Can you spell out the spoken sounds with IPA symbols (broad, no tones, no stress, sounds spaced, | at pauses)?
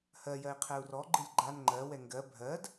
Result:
h ɜ j ɜ i̯ qʰ ɛ u̯ r ɔ ɡ͡ǃ ɨ lʲ ɡ͡ǃ a n ŋ͡ǃ ɜ w ɛ ŋ ɡ ɜ bʱ ɜ d